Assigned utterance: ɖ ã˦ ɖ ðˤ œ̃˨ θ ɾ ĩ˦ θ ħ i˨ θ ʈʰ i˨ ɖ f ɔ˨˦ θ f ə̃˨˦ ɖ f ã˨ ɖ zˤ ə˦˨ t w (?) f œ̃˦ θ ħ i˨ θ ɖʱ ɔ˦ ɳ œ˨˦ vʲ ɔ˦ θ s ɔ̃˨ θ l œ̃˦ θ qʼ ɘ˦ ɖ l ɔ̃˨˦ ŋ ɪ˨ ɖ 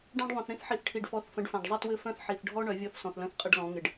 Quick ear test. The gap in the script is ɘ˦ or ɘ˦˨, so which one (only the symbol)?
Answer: ɘ˦˨